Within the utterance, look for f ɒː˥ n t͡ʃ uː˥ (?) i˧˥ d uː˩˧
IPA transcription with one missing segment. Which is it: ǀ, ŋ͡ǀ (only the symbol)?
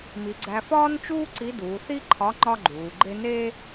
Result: ǀ